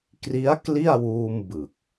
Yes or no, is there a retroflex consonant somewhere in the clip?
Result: no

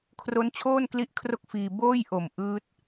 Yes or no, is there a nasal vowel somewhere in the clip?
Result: no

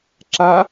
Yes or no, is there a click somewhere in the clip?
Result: yes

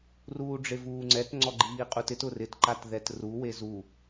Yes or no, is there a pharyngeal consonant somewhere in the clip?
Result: no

